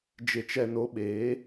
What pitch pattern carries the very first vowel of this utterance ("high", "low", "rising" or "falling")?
low